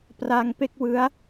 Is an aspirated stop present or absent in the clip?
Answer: absent